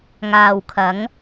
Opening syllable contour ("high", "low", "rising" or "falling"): low